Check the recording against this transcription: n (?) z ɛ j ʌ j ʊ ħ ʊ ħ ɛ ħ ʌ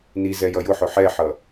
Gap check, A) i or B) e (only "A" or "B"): A